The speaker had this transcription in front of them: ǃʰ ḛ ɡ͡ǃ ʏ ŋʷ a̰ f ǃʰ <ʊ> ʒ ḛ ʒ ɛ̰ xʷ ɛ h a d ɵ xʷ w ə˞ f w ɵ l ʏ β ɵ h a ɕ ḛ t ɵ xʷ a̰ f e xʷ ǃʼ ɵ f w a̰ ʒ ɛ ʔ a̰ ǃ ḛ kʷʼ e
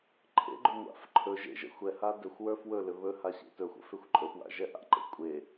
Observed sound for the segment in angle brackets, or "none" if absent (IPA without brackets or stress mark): ɵ